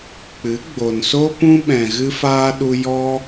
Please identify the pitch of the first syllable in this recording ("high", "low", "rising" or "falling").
rising